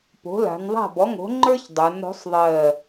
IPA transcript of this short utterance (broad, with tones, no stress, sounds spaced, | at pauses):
p o̤˩˥ l a̤˩˧ n ðˤ a̤˥˩ b ɔ˩˥ ŋ o̤˩˥ ŋ͡ǃ ə˞˦ ç dˤ ə˞˩˧ n ɾ o̤˩˥ sˤ ðˤ ɜ˧˩